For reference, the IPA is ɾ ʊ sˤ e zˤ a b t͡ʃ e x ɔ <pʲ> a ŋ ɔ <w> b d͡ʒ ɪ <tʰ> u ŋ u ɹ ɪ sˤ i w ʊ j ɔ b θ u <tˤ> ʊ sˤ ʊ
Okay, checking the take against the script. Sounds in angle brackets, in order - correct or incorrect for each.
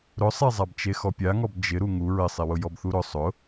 correct, incorrect: none, incorrect: ɾ, incorrect: ɾ

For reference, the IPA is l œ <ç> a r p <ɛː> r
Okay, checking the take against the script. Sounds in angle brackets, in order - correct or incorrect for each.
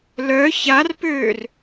correct, incorrect: øː

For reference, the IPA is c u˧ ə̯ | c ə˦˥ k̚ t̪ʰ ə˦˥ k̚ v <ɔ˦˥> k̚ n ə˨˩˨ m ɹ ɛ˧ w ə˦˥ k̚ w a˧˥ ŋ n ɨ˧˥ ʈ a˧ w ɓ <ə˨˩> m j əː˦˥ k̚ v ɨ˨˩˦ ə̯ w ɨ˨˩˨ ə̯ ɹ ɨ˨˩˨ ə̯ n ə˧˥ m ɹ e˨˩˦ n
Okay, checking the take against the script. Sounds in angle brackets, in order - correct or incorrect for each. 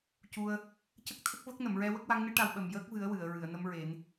incorrect: ə˦˥, correct

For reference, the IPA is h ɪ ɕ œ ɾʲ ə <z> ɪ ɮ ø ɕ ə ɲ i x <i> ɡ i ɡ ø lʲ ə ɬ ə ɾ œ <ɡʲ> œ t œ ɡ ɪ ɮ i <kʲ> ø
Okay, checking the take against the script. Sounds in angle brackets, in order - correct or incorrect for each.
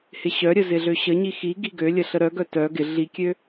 correct, correct, incorrect: ɡ, correct

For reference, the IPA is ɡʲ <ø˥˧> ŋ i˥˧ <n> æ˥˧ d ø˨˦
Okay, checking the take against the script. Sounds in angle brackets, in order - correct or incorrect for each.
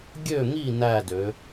correct, correct

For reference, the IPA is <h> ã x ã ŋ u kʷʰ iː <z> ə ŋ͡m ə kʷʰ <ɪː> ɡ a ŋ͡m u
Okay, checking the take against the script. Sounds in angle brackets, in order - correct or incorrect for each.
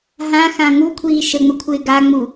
incorrect: ɦ, incorrect: ʃ, correct

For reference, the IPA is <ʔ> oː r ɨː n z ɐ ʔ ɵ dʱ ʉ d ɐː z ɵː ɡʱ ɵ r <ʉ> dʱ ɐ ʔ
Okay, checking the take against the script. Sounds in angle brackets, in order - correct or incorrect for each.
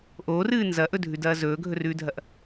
correct, incorrect: ʉː

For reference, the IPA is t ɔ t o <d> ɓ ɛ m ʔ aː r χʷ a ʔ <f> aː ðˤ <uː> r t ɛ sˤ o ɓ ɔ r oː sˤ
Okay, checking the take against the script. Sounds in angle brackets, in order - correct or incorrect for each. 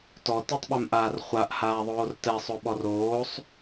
incorrect: tˤ, incorrect: h, incorrect: oː

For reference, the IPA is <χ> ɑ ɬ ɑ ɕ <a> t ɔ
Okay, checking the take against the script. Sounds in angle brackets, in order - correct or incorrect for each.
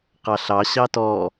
incorrect: q, incorrect: ɑ

